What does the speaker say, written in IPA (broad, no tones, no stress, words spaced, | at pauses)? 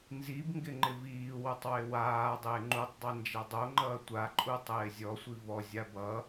nzibŋɡɪ ŋ͡ǃɪviːwotˤ wɪwaːdˤɪː ŋ͡ǃutˤdˤi nd͡ʒadˤoŋ͡ǃʌː tʷaǃʼu tˤɪːzʲɔsʷi vɔzʲa bʌ